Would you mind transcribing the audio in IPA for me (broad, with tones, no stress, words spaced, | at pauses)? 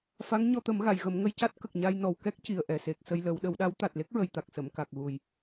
fa˧˥ŋɲɔ˧ t̪ə˨˩˦m ɣa˨˩˨jɣə˨˩˦mŋə˧j ca˦˥t̚kə˨˩k̚ ɲa˧j nɔ˨˩wkɛ˦˥k̚ ci˨˩ə̯ʔɛ˨˩se˨˩k̚sə˧j lə˨˩˦wɗə˨˩˦wɗa˧˥w t̪a˨˩t̚le˦˥k̚ɹə˨˩j t̪a˨˩k̚sə˨˩˨mka˨˩k̚ɣu˨˩j